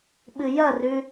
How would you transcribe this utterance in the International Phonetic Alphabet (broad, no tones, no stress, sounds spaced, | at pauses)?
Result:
ɓ ɨ j ɐ r ʉ